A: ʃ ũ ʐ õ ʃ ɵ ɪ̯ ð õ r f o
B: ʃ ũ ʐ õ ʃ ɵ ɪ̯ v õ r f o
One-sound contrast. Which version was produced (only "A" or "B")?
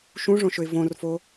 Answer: B